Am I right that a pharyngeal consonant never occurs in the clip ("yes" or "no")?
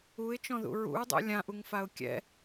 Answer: yes